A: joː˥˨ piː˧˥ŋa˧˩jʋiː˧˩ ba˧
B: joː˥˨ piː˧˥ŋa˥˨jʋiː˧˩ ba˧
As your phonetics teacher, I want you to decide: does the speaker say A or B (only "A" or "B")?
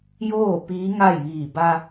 B